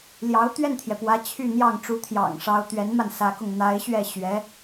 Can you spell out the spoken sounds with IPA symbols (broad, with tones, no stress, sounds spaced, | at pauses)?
l j ɑ˧˥ ʊ̯ t̪ ɥ ɛ˥˩ n t̪ʰ j ɛ˩ p w ä˧˥ t͡ɕʰ y˥˧ n̪ j ɑ˥˩ ŋ ʈ͡ʂ u˧˥ t̪ʰ j ɑ̰˨˩ ŋ ʂ ɑ˧˥ ʊ̯ t̪ ɥ ɛ˧˥ n m a˧ n s ä˧˥ k ʊ˧ ŋ n̪ a˧˥ ɪ̯ ɕ ɥ ɛ˥˩ ɕ ɥ ɛ˧˥